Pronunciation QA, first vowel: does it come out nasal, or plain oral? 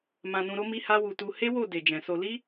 nasal